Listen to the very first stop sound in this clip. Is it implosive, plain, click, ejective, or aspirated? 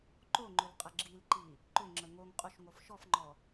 click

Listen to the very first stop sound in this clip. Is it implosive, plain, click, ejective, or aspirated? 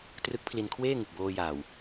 plain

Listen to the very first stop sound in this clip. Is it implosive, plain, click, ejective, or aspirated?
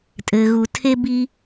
ejective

